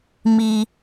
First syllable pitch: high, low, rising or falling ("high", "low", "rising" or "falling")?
high